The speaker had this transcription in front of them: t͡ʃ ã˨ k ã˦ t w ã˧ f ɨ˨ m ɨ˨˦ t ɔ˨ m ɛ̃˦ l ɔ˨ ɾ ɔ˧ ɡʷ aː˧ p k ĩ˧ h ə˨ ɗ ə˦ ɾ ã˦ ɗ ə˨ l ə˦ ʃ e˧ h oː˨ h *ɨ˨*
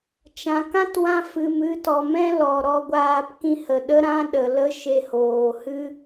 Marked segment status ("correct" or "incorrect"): incorrect